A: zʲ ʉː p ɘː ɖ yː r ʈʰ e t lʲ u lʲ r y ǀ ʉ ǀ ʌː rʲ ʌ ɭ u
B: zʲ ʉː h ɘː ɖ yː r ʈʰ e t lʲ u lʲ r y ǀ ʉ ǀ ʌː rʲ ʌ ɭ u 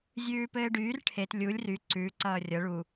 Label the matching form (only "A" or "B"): A